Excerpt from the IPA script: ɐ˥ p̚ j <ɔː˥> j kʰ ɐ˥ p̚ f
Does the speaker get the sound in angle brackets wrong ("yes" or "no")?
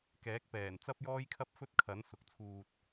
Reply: no